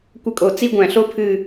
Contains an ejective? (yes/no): yes